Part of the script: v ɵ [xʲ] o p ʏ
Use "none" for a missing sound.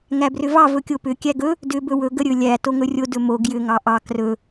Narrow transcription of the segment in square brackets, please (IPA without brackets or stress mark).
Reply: kʲ